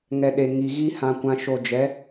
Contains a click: no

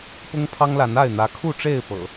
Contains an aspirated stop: yes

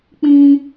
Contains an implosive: no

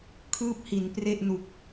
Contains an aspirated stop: yes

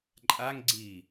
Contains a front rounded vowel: no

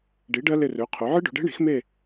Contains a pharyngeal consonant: yes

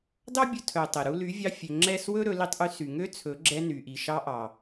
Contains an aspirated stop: yes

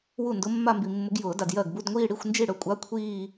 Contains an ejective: yes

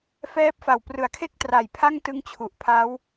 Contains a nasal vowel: no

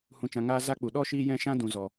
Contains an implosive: yes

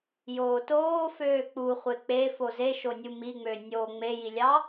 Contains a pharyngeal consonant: no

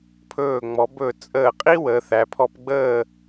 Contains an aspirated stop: yes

